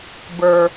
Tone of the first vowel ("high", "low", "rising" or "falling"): low